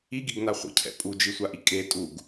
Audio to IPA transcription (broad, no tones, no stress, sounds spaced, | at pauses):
i ɡ i ɡ n a χʷ ə̰ cʰ ɛ̰ pʼ u d͡ʒ i sʷ a ʔ i kʼ e tʼ u ɡ